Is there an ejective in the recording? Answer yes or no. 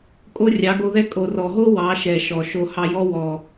yes